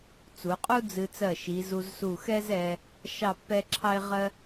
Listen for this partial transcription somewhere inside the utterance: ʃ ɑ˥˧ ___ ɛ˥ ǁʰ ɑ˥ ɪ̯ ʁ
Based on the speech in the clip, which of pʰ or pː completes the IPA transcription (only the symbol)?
pː